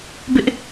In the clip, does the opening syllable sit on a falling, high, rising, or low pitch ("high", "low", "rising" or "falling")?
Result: high